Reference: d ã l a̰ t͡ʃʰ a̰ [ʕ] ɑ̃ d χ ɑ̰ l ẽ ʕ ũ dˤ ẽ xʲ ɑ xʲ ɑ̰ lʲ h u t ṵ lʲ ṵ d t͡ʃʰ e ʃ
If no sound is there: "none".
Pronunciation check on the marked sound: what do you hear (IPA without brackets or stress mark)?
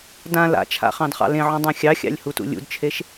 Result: χ